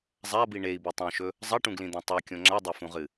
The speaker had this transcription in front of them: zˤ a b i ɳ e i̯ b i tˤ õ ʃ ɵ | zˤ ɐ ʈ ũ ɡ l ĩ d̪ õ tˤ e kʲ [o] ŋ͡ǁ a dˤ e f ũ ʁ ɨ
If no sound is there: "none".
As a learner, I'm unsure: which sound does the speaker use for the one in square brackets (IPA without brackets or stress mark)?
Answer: õ